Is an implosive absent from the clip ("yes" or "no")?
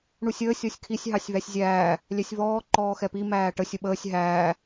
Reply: no